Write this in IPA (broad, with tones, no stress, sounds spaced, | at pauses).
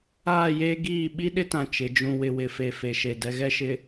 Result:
aː˦˨ j eː˦ ɡ iː˦˨ ɓ i˦ ɗ ɪ˦ t ã˨ t͡ʃ ɪ˨˦ d͡ʒ ũ˦ w ɪ˦ w ɪ˨ f e˨ f e˨ ʃ e˨ d ɛ˨ ɣ ɛ˦˨ ʃ ɪ˨